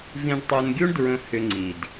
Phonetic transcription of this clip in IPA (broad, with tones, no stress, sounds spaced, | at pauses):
v ĩ˧ ɖ tˤ o˧ n ɡʲ u˦ ɳ d ɹ ə̃˧ h ʏ˧ ŋ͡ǀ i˨ d